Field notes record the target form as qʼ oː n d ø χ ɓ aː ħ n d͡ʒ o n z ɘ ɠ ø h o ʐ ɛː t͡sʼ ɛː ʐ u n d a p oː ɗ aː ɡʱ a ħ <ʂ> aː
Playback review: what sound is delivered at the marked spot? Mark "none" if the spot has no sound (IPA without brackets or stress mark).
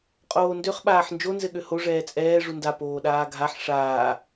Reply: ʂ